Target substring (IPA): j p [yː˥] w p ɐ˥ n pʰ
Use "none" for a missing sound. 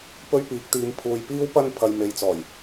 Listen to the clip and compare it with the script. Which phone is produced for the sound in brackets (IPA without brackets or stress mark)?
iː˥